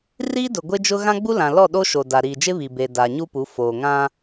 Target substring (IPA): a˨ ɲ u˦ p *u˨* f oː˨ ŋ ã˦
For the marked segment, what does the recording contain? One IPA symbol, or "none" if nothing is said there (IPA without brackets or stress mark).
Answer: u˨˦